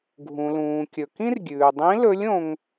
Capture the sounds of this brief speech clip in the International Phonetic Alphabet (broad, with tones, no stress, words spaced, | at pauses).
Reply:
ɡʱũ˩lũː˩kʲɵ˩ kĩ˥rɡʲʉː˩dˤĩ˧˥lɵ˧˥lʲ õ˧ŋ